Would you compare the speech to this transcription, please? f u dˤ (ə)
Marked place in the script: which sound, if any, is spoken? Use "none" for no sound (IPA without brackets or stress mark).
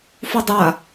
a